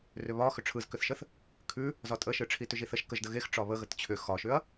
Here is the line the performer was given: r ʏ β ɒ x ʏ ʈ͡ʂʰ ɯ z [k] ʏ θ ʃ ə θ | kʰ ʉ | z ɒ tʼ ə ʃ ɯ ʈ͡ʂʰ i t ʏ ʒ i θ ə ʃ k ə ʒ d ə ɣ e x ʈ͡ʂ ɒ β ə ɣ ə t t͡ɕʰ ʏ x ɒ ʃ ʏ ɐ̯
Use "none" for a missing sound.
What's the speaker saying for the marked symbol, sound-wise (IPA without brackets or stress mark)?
k